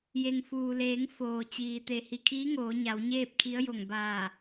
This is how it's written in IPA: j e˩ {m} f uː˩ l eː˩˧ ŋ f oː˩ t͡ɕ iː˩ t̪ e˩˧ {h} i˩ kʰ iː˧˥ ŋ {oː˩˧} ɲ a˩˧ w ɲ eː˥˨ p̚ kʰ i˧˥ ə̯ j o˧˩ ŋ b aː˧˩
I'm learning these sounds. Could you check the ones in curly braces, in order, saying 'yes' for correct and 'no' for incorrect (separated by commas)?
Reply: no, yes, yes